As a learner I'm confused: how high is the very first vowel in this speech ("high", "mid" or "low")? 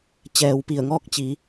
mid